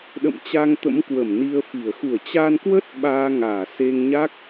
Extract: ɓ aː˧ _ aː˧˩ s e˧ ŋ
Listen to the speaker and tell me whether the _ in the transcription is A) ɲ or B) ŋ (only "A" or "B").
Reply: B